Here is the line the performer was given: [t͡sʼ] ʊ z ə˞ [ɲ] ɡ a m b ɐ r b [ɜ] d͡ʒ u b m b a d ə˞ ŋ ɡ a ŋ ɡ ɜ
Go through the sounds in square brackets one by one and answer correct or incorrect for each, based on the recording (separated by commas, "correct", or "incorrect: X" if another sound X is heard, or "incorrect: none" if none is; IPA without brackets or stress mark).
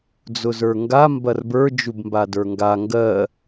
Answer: incorrect: d͡z, incorrect: ŋ, incorrect: ə˞